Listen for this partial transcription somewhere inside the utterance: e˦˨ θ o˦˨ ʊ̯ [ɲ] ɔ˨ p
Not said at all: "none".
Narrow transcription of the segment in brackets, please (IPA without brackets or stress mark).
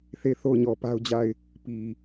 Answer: ɲ